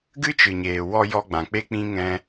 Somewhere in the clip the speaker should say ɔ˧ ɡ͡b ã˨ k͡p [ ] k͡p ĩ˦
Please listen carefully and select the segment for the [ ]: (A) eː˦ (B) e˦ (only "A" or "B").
B